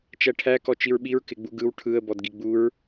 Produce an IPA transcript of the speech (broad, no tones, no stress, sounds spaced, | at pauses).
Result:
t͡ʃ æ ʈʰ æ k ɔ t͡ʃ i ɹ ɓ i ɹ k ɪ ɡ͡b u ɡ ɯ w ʈʰ ɯ ə̯ b ɔ d ɡ i ɡ͡b u ɹ